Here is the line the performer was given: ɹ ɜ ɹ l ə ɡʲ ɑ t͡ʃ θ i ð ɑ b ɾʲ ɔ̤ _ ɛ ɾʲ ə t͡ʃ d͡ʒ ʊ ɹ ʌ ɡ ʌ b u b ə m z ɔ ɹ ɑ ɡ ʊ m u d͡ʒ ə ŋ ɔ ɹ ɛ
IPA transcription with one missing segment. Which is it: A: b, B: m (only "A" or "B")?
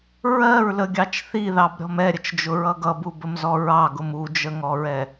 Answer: B